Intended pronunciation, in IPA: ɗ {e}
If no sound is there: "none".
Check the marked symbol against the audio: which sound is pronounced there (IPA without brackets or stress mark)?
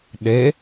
e